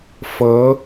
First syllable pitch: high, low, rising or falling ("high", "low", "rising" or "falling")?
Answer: rising